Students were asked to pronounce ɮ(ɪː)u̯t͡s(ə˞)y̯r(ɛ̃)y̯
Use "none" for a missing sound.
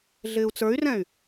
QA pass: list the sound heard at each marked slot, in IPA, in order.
ɪː, ə˞, ɛ̃

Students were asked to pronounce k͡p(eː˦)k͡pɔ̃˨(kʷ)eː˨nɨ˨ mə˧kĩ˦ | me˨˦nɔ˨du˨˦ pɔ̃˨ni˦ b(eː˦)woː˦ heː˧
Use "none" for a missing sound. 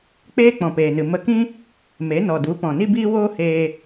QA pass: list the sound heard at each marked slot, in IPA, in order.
eː˦, p, iː˦

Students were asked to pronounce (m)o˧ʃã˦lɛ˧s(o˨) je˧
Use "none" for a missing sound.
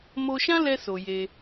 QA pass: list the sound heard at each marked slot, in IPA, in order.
m, o˨

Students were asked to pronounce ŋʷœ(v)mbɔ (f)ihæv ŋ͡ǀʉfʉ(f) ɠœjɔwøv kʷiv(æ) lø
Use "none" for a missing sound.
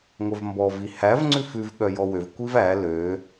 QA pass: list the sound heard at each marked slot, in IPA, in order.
v, v, v, æ

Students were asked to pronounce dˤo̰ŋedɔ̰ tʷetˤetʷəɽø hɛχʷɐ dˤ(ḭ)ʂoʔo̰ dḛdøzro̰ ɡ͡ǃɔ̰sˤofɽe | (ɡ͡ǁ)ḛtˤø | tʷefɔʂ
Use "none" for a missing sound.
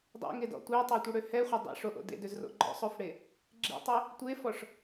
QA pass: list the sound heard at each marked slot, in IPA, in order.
ḛ, ɡ͡ǁ

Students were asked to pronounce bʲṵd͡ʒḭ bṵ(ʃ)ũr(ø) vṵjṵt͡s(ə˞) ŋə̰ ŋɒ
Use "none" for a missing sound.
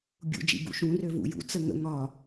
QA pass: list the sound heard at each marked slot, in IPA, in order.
ʃ, ø, ə

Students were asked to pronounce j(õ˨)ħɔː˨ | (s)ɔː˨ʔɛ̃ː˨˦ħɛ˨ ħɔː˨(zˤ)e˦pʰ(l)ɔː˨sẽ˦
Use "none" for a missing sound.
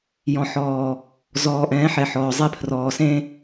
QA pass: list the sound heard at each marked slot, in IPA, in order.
ɔ̃˨, z, zˤ, r

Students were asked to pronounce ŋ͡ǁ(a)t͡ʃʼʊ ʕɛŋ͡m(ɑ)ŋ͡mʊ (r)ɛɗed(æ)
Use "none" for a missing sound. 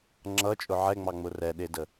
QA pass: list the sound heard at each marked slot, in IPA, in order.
ʌ, ɑ, r, ə

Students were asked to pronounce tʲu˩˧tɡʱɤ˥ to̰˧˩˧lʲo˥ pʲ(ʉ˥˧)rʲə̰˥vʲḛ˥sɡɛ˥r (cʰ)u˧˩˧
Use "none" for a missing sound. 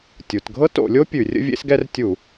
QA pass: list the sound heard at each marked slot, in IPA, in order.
ʉ˧˩˧, tʲ

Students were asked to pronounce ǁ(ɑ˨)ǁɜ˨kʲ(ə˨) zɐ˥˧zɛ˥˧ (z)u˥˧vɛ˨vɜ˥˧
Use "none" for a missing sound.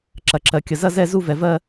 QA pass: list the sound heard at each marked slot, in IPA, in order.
ɐ˨, ə˨, z

